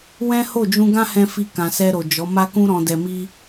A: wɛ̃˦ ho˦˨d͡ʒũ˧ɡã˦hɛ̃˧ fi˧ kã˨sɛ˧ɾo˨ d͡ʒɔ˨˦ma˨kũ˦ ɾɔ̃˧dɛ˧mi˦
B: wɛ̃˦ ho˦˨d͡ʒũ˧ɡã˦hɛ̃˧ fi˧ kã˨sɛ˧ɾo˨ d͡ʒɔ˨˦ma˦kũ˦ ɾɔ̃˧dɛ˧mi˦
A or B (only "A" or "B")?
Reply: B